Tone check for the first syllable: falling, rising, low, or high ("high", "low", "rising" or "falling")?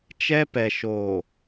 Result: high